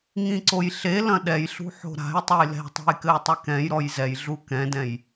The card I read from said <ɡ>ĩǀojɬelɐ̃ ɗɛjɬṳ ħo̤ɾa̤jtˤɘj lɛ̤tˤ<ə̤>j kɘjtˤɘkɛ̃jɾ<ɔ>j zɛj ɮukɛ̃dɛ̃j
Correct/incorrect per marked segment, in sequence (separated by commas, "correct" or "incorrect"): incorrect, incorrect, correct